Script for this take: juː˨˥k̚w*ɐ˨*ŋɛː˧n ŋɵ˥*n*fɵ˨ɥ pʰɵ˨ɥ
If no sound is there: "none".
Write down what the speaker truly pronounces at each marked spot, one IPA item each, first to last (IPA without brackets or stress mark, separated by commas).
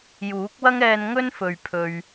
ɐ˥, n